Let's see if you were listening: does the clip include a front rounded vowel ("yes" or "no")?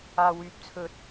yes